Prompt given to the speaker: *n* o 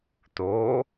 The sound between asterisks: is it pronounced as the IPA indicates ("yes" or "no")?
no